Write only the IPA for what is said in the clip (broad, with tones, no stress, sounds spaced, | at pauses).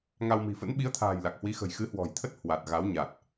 ŋ a˧ w m i̤˨˩ f ə̰˧˥ n ɓ i˨˦ ə̯ t̪ʰ a̤ː˨˩ j l a˨˩ k̚ h w i˨˦ x ə̤˨˩ j x ɨ˨˦ h w ɔ̤˨˩ j t̪ʰ ə˦˥ t̚ h w a˨˩ t̚ ɣ a˨˦ w ɲ a˨˩ t̚